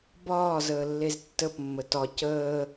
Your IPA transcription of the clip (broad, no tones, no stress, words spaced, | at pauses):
bɒː zəːlːeztːəpmːə tɒ cəː